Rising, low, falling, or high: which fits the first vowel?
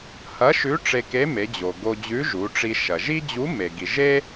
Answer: rising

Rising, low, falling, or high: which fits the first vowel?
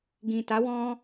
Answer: low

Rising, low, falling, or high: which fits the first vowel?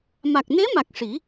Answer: low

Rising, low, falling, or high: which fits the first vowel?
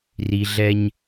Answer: low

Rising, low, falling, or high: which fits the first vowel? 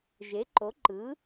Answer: rising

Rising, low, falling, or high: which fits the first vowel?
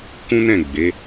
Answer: high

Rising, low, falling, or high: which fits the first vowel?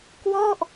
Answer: falling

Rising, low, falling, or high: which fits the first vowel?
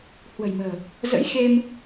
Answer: low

